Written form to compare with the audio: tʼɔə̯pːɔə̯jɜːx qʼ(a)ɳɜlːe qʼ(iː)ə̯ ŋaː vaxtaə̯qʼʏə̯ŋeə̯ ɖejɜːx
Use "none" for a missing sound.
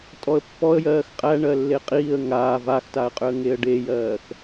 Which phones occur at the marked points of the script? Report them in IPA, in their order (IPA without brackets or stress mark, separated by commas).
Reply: æ, iː